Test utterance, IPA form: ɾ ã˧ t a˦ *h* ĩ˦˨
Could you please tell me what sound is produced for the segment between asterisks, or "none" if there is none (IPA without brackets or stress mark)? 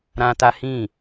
h